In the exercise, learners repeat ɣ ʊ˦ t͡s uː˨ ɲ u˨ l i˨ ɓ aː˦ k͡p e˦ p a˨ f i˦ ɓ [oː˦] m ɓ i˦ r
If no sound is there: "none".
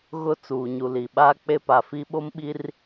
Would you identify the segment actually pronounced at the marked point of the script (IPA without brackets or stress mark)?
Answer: o˦